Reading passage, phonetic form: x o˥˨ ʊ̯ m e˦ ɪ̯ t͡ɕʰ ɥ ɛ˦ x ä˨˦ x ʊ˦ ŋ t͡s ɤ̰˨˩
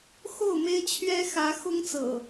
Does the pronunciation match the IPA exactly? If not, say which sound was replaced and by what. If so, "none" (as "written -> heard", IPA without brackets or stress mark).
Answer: none